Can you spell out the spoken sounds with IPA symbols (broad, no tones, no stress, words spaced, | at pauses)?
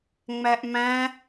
ŋ͡mæʔmæ̃